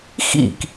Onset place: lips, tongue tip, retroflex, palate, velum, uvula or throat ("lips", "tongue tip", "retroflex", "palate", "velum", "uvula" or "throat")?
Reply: velum